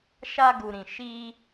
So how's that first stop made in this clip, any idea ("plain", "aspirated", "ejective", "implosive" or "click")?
plain